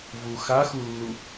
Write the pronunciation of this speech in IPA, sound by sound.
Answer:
v u x a x u lː u

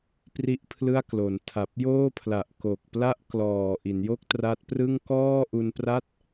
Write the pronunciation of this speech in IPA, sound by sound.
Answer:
p r i˥˩ ʔ pʰ l ɯ˥˩ a̯ k l o˩˦ n tʰ a˨˩ p̚ j oː˥˩ pʰ l a˨˩ ʔ k o˨˩ k̚ p l a˥˩ ʔ k l ɔː˨˩ ʔ i˩˦ n j o˥˩ k̚ t r a˦˥ t̚ p r ɯ˥˩ ŋ k ɔː˥˩ ʔ u˧ n p r a˥˩ t̚

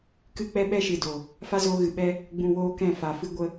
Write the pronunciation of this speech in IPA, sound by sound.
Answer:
k ɨ˦˨ k͡p ɛ˦ ɓ ɛ˦ ʃ ɨ˨ d o˨ | f a˦ z oː˧ ɣ ɨ˨ ɓ ɛ˦ | ɡ͡b ũ˧ w oː˦ k ɛ̃˦˨ f a˨ f ɨ˦ ɡʷ ə˧

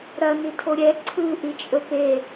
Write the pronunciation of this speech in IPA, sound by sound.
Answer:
ɾ ɐ n i tʰ o ɾʲ ɛ ǀʰ ɯ ʔ i t͡ʃʼ ɵ p e

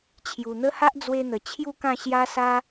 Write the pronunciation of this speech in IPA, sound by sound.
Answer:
t͡ɕʰ j u˨˩ n̪ ə˦ h a˦ ʔ d͡z w e˧ n̪ ə˨˩ t͡ɕʰ j u˥˧ k ã˥˧ ɕ j a˦ s a˦

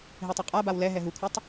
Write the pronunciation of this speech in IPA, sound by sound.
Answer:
ɦ e tˤ u qʼ a b a w l ɛ ɦ ɛ ɦ u kʷʰ ʌ tˤ

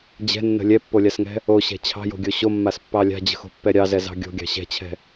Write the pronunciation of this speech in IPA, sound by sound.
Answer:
d͡ʑ ɛ̤ nː ə̤ lʲ ɛ pː o lʲ a s ŋ ɛ̤ | o ɕ ɛ̤ t͡ɕʰ ɑ̤ j o̤ ɡʲ o ɕ o mː a s pː ɑ lʲ a̤ d͡ʑ ə̤ x o̤ pː ɛ ɾʲ ɑ z ɛ z ɑ̤ ɡʲ o̤ ɡʲ ɑ̤ ɕ ɛ̤ t͡ɕʰ ɛ̤

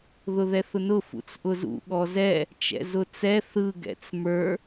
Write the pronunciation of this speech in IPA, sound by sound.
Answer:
ð ʊ ð ɛ θ ʊ n ʊ f ṵ t͡s ʔ ʊ z ṵ ɠ ɔ z ɛ | t͡ʃ ɛ̰ z ʊ t͡s ɛ θ ɯ ɡ ɛ̰ t͡s m ə˞

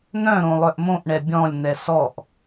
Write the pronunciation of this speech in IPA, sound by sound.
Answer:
n̪ œ̃ ɾ õ lˠ œ ʔ m õ ʔ ɳ ɛ bʲ ɔ̃ lʲ n̪ ɛ s ɔ ʔ

